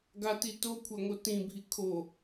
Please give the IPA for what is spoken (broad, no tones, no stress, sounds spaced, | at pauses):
ɡ a t i t o kʷʰ a ŋ o t ĩ bʱ i kʰ o